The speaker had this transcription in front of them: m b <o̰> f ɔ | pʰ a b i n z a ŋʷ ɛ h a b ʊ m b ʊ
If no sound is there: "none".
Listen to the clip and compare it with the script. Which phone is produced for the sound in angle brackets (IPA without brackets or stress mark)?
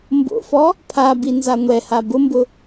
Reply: o̰